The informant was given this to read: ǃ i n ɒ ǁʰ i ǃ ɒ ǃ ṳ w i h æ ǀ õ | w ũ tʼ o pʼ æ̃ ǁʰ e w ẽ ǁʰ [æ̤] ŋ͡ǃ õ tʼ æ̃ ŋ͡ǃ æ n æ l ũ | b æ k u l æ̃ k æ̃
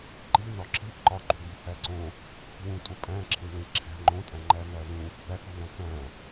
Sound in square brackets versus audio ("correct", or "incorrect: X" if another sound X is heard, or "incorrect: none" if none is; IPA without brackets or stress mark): correct